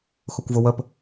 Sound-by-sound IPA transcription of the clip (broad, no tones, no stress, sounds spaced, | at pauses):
x ʊ kʷ v ʊ w ə p